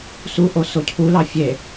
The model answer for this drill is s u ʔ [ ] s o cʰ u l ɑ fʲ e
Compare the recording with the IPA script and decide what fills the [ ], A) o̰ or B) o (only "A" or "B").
B